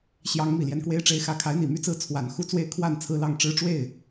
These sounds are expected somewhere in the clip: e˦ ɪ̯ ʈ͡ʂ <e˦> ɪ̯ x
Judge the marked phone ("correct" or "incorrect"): correct